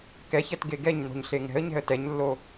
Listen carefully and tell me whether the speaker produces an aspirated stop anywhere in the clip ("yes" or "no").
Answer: no